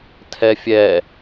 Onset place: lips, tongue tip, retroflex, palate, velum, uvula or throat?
tongue tip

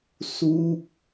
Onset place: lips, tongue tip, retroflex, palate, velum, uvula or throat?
tongue tip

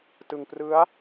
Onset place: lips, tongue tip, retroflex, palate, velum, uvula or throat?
tongue tip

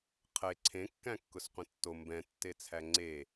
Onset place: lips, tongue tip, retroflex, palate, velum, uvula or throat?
uvula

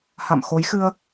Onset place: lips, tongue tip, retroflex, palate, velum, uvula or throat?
throat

